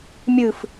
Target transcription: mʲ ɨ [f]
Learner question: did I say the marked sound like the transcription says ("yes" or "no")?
yes